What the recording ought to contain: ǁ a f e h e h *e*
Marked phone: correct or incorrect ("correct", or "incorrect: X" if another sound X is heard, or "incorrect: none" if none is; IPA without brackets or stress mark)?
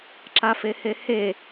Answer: correct